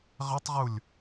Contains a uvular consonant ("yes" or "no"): yes